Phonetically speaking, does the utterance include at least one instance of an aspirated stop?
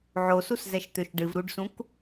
no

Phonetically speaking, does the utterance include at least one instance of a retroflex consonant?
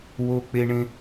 yes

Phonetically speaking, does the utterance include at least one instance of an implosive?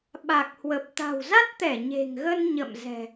yes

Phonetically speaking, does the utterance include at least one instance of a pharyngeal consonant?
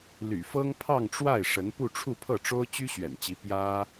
no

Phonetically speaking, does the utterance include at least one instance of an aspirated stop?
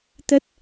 no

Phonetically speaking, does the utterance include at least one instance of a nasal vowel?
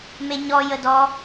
no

